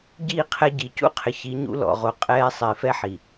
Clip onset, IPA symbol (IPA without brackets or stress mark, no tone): ɟ